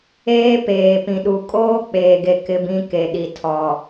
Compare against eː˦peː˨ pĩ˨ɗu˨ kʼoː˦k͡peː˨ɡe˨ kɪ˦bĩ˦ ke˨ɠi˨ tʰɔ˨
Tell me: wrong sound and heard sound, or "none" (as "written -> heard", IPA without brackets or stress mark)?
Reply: ɠ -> ɗ